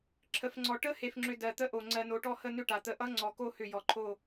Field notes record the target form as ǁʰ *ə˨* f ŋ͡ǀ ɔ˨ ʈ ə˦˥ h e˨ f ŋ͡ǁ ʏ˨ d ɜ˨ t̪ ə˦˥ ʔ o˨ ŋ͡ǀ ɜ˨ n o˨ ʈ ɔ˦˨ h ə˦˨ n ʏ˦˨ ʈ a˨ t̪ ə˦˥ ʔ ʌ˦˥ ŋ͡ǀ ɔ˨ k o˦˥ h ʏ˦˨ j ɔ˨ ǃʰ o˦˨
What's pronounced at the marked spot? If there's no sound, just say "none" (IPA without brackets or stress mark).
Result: ə˨